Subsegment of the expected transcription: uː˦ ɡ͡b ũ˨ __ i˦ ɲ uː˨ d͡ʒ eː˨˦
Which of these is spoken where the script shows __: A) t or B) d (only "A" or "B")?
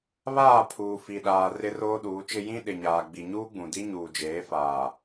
B